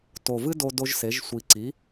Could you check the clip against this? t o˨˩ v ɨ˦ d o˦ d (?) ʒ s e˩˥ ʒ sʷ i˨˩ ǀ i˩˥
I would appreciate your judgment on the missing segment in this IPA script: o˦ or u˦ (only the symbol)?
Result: o˦